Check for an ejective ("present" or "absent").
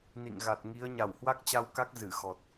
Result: absent